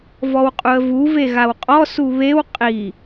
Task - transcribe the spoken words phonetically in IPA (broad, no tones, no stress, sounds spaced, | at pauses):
v ɔ w qʼ u ə̯ v u v e ɣ a w qʼ ɔ s u β e w qʼ i